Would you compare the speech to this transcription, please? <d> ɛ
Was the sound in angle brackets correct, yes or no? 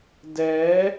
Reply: yes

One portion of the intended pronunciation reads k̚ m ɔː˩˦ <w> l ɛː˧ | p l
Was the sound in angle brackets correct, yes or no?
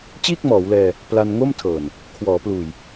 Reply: yes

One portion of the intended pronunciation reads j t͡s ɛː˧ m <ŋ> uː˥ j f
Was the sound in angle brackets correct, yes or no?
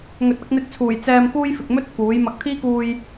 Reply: no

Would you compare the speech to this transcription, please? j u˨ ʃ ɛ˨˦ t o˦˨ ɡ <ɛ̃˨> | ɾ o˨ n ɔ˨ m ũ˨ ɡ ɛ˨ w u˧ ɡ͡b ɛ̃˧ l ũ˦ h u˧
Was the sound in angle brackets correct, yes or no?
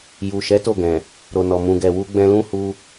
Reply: yes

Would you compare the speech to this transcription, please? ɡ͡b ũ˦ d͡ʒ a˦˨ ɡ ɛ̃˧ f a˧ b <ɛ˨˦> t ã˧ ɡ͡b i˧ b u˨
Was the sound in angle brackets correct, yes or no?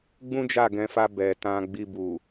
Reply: no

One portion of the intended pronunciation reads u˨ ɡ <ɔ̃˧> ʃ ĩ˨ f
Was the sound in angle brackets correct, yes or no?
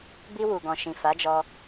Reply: no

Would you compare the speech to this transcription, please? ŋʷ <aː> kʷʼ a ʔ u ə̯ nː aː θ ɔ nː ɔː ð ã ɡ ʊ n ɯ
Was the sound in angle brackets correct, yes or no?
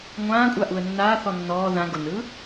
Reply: no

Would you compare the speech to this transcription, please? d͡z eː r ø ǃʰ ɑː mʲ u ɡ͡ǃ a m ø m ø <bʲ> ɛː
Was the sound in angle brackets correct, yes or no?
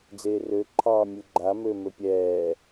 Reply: no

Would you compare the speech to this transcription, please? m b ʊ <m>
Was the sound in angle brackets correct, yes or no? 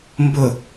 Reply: no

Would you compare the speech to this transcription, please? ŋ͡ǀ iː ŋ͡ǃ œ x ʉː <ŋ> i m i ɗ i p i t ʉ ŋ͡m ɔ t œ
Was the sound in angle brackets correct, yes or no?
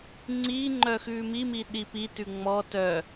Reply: no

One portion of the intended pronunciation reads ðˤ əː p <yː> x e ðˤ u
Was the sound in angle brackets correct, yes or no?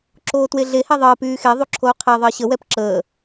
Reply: yes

